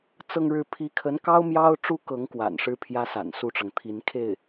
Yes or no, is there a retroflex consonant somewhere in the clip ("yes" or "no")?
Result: yes